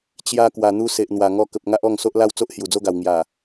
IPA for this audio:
t͡ɕ j a˧ k w a˨˩ n̪ u˧ s e˨ ʔ n̪ w a˨˩ ŋ ɔ˧ k ə˨ p̚ ŋ a˦ ʔ ɔ˥˧ ŋ s o˦ ʔ l a˥˧ w t͡s o˦ ʔ h j u˨˩ d͡z o˦ ɡ a˨˩ w ŋ j a˨˩

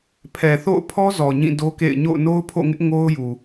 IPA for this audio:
pʰ ɛ˨ θ o̰˦˨ ʊ̯ pʰ ɔ˦ z ɔ˨ ɲ ĩ˦˨ d o˦ k ḛ˦˨ ɪ̯ ɲ o̰˦˨ ʊ̯ n o˦ ʊ̯ pʰ o̰˦˨ ŋ ɪ˦ ʔ ŋ o˦ ʊ̯ j u˨

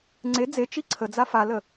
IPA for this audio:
ŋ͡ǀ e d͡z e t͡ʃ i ǀʰ ə d͡z a f a l ə

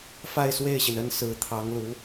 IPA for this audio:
f a˥˧ ɪ̯ s w e˥˩ ɪ̯ ɕ i˩ n ə˥ n s ɹ̩˧˥ t̪ʰ ɑ˧˥ ŋ l u˧˥

